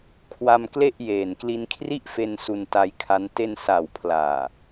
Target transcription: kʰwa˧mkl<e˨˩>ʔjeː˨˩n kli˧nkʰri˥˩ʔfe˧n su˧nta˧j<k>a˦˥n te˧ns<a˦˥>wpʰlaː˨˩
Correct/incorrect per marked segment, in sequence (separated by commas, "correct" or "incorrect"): incorrect, incorrect, incorrect